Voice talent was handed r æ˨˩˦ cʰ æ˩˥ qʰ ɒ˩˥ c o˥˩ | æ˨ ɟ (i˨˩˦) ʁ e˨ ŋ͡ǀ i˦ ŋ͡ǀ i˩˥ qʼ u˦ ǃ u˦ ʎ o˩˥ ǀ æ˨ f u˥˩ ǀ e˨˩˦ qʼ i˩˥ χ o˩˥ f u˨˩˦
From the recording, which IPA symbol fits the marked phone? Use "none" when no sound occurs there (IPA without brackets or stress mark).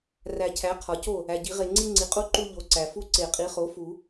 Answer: i˨˩˦